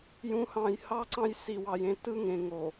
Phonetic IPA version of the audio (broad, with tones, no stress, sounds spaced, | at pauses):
j ũ˨ h ɑ̃˨ j h ɑ˦ ǀ ɑ̃˦ j s i˨ w ɑ˨ j ẽ˦ t ɯ˦ ŋ ẽ˨ ŋ o˨